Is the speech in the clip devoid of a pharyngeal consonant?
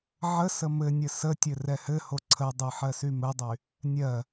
no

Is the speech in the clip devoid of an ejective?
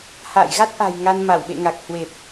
yes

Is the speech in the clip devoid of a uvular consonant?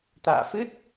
yes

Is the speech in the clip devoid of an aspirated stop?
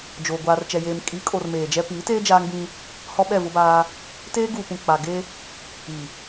yes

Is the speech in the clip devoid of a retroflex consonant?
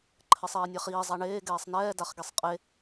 no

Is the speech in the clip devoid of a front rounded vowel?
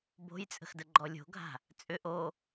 no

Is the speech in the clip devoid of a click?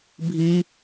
yes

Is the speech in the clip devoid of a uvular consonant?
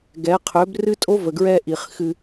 no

